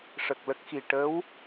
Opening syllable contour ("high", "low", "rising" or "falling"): low